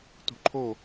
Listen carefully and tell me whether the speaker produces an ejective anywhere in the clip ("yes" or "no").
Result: no